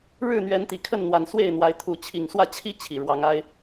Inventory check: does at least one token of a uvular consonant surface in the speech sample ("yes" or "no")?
no